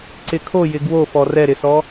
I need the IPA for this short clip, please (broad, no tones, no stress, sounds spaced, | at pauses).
ǀ ɪ kʰ o j ɪ ɡ w o f ɔ r ɛ ɾ ɪ s ɔ